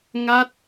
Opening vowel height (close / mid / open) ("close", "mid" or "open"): open